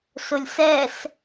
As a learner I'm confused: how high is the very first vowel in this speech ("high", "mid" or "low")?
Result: high